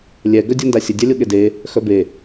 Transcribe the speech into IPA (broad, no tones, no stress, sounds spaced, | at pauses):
lʲ ɛ ɡ œ dʲ œ n d a sʲ ə dʲ a lʲ o ɠ e d e | x œ b e